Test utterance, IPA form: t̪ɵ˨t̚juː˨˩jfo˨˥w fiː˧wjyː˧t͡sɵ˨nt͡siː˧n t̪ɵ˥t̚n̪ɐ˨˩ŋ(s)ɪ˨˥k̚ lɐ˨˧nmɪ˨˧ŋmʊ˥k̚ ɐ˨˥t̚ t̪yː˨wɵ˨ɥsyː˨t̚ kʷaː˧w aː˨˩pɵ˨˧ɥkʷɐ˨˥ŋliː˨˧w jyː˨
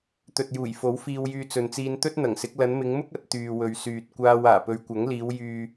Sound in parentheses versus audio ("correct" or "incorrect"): correct